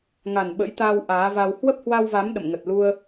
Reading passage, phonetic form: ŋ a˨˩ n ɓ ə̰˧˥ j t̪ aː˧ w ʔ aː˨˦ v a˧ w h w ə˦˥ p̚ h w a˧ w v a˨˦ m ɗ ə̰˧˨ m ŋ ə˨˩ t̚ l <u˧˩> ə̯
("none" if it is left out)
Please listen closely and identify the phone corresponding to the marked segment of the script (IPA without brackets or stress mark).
u˧